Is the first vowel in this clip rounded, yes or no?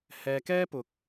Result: no